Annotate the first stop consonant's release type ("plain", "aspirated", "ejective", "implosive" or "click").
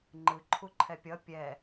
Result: click